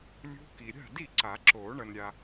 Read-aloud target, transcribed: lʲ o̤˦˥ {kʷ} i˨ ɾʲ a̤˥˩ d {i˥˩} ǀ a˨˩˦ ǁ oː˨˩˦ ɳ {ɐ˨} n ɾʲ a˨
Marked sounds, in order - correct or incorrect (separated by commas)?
incorrect, correct, correct